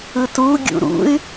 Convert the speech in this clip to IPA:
ɯ t u ɡʲ ṵ ɾ ṵ y̯

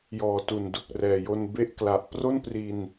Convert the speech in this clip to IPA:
j ɔː˨˩ t u˨˩ n d u˨˩ k̚ r ɛː˨˩ j o˧ n b e˦˥ ʔ k l a˨˩ ʔ p r o˥˩ n p r i˧ n

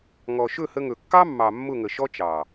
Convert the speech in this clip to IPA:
ŋ ɔ˨ ʃ ɵ˦˨ h ə˧ ŋ ɵ˨ kː ɑ˦ mː ɑ˨ mː ʊ˦˨ ŋ ə˨ ʃ ɔ˦ t͡ʃ ɑ˨

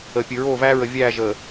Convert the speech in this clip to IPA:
əː˨ pʲ ɨ˨ ɹ oː˦˨ v æː˦ ɹ ə˨ vʲ æː˦˨ ʒ əː˨

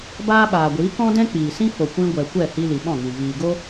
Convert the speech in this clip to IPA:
b aː˦ ɓ aː˨ ɡʷ iː˨˦ k ɔ̃˦ d ɛ̃˦ k͡p iː˨ s ĩ˦ f o˨ kʷ ĩ˧ ɡʷ ɛ˨ kʷ ɛ˦˨ h i˧ l i˨ ɓ ɔ̃˦˨ ŋ ĩ˨ v iː˨ ɡ o˦

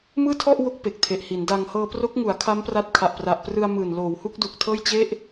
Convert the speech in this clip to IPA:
m ɯː˥˩ tʰ ɔ˥˩ ʔ w o˦˥ k̚ p e˨˩ k̚ tʰ e˨˩ ʔ h i˩˦ n d a˧ ŋ h ɤː˧ p r o˦˥ k̚ ŋ u˩˦ a̯ kʰ a˦˥ m p r a˦˥ t̚ kʰ a˨˩ ʔ p r a˨˩ ʔ p r ɯ˧ a̯ m ɯː˨˩ n l oː˩˦ w h u˦˥ k̚ d u˨˩ k̚ tʰ ɤː˥˩ j t͡ɕ e˥˩ ʔ

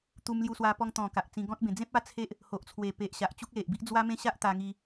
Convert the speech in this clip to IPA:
t̪ u˧ m l j u˧ s w a˧ p ɔ˧ ŋ t̪ ɔ̃˨˩ k a˨ ʔ t͡s ĩ˧ ɡ ɔ̃˦ t̚ b ẽ˧ d͡z ẽ˦ p̚ a˦ t͡sʰ e˦ ʔ | h o˨ ʔ t͡sʰ w e˨˩ p e˨ ʔ ɕ a˨ ʔ t͡ɕ u˦ k̚ l e˨ ʔ b i˦ ʔ d͡z w a˦ m ẽ˦ ɕ a˦ ʔ t̪ a˧ ŋ i˧

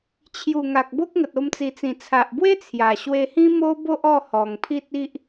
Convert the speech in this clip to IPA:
t͡ɕʰ j u˨˩ ŋ a˨ k̚ b o˦ k̚ ŋ ə˨ t̚ o˧ m t͡s i˨˩ t͡s ĩ˨˩ t͡sʰ a˨ ʔ b w e˦ t͡sʰ j a˨˩ ɕ w e˧ h ĩ˦ m o˦ b o˦ ʔ ɔ˥˧ h ɔ˨˩ ŋ pʰ i˦ t̚ i˦ ʔ

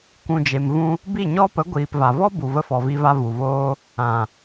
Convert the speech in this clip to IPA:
k ũ˨ d͡ʒ e˨ m v ũ˧ | b i˦˨ ɲ ɔ˦ p ə˨˦ ɡʷ iː˨ p v a˨ v ɔ˦ b u˨ v ə˧ f ɔ˨ v i˧ v a˧ v u˨ v oː˦ | ã˨

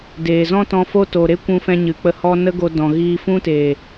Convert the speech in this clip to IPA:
d eː˨ z ɔ̃˦ t ɔ̃˧ f o˦ t o˨ ɾ e˦ kʷ ũ˧ f ɛ̃˧ ɲ ɨ˨ k͡p ə˧ h ɔ˧ n ə˦ ɡ o˧ d ɔ̃˨ ɣ iː˧ f ũ˦ t eː˨

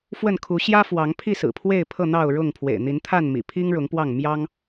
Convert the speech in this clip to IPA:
f w ə˥˨ n kʰ u˨˦ ɕ j ä˦ f w ɑ˨˦ ŋ pʰ i˥˨ s ɹ̩˨˩ pʰ w e˥˨ ɪ̯ pʰ ɤ˥˨ n̪ ɑ˥˨ ʊ̯ ɻ ʊ˥˨ ŋ pʰ w ḛ˨˩ ɪ̯ n̪ i˨˦ n t̪ʰ a˥˨ n m ḭ˨˩ pʰ i˦ ŋ ɻ ʊ˨˦ ŋ p w ɑ˥˨ ŋ m j ɑ˦ ŋ

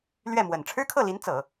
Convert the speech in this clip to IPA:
l ɥ ɛ˥˩ m w ə˨˩ n ʈ͡ʂʰ ɻ̩˥ kʰ ɤ˥˩ l i˧˥ n t͡s ɤ˨˩˦

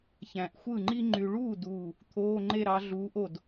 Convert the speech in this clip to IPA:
ç æ̃˨ ʔ xʷ ɯ˥˩ ŋ͡ǃ i˥ ŋ͡ǃ y˨ ɭ uː˥˩ d uː˥˩ | t̪ʰ oː˧˥˧ ŋ͡ǃ e˥˧ ɾ ɑ˧˥ ɮ uː˧˥ ʔ o˥˧ d

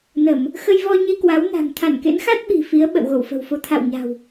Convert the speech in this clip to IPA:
n ə˧˩˨ m | x ə˧ j v ɔ˧ ɲ i˧ k w a˨˦ w n a̤˨˩ ŋ t̪ʰ a˧˩ n k ḛ˧˥ n x a˦˥ t̚ ɓ i̤˨˩ f i˨˦ ə̯ ɓ ə̰˧˨ w ɣ o˧˩ w f ə̤˨˩ w f o˧ t̪ʰ a̰˧˨ w ɲ a̤˨˩ w

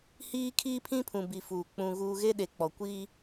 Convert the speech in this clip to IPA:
h iː˦ kʰ iː˦ pʰ ĩ˦ pʰ ũ˨ b i˨ f uː˨ k͡p ũ˨ ɣ uː˨ ɣ e˦ ɗ e˨ k͡p ɔ˨ kʷ i˦

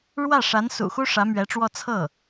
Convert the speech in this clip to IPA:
ɻ w ä˥˩ ʂ a˧˥ n s ṵ˨˩ x u˥ ʂ ä˧˥ m ɥ ɛ˧˥ ʈ͡ʂ w ɔ˥˧ t͡sʰ ɤ˥˩

